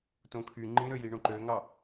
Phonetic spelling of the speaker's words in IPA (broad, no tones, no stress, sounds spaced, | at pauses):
t õ kʰ y ŋ͡ǃ ĩ ɾ ø j i ɳ õ ǃ ø ŋ ɑ